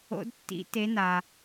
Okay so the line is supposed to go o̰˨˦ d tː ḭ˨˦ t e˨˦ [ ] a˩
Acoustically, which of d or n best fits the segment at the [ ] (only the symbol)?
n